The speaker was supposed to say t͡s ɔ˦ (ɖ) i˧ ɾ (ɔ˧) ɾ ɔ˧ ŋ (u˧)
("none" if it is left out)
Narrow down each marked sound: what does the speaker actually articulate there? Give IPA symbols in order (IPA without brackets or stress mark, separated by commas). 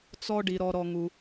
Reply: ɖ, ɔ˧, u˧